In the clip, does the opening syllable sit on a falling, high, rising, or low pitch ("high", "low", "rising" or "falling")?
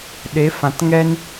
rising